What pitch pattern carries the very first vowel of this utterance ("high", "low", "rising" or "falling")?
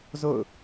falling